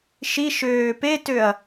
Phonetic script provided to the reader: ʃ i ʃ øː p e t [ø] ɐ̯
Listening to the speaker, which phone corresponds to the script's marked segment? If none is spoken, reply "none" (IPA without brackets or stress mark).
ø